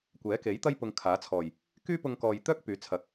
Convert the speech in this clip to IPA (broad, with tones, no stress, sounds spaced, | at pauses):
kʷ ɛː˨˥ k e˨˥ j t̪ ɐ˥ j p ʊ˧ ŋ kʰ aː˨˥ t͡sʰ ɔː˨˩ j | k yː˥ p ʊ˧ ŋ k ɔː˨ j t̪ œː˥ k̚ p yː˨˥ t͡sʰ ɐ˨˥ k̚